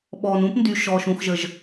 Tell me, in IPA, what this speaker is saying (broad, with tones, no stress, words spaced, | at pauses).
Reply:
ɓɔː˨n ũː˦pndy˨ ʃɔː˨ʃũ˨xʒə˨ʒ